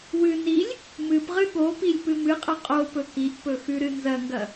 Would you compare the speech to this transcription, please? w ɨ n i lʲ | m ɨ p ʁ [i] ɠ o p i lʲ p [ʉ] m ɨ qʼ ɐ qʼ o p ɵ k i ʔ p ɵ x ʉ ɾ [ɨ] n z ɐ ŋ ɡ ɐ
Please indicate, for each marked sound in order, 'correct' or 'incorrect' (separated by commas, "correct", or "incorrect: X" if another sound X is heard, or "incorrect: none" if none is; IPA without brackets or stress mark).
incorrect: ɨ, incorrect: ɨ, correct